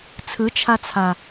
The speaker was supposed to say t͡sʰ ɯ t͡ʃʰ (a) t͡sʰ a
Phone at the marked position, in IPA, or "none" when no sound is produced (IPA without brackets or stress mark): a